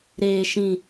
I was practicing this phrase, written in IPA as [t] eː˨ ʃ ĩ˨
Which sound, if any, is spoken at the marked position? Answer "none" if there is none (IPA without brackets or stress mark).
ɾ